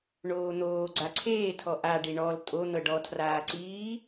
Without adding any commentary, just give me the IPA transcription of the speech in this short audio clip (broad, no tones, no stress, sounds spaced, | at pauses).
ɳ oː n̪ oː ɡ͡ǀ a ǀʰ eː tʰ ɔ ʔ a ɖ i ɳ ɔ l tʼ o n̪ ɤ ɖ ɔ tʰ r aː ǀ iː